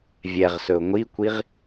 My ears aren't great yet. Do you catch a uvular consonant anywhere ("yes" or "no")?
yes